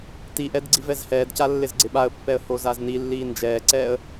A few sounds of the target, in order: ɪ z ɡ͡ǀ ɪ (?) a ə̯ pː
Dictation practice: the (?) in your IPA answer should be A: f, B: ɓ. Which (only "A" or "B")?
B